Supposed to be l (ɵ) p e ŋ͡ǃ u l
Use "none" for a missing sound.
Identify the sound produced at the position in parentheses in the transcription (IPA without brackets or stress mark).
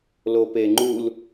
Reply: o